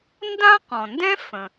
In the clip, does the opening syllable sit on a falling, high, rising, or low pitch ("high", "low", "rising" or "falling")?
high